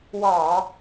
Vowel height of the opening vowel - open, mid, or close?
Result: open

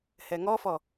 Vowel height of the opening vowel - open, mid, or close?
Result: mid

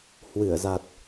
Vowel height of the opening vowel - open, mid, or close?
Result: close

